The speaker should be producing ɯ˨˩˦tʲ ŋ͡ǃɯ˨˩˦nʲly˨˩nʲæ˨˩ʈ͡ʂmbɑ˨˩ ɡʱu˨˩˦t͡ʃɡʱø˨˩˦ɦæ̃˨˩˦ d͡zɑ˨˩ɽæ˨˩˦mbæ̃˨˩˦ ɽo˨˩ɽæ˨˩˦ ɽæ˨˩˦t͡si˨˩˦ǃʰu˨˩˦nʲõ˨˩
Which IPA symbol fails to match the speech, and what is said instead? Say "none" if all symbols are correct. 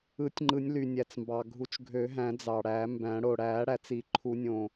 ʈ͡ʂ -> t͡s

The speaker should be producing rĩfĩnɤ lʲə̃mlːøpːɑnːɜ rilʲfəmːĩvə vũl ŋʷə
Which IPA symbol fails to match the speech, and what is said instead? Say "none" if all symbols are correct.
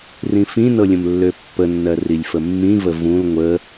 ɑ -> ə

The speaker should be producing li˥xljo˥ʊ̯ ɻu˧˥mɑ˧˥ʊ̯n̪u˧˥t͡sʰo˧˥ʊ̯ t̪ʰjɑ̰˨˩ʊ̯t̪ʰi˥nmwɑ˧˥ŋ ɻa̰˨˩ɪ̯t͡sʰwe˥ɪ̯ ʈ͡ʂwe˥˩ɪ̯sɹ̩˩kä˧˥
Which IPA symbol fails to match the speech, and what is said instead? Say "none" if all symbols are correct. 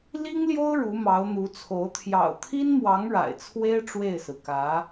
x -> ŋ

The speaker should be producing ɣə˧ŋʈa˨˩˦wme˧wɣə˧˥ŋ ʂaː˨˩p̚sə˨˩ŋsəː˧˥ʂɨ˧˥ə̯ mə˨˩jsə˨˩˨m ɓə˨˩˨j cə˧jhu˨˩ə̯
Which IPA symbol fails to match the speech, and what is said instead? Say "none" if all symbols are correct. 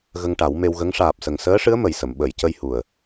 none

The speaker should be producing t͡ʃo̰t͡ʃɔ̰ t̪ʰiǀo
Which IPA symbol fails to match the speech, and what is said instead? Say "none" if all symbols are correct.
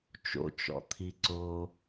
none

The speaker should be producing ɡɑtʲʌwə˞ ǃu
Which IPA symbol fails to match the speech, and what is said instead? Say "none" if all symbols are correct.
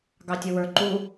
none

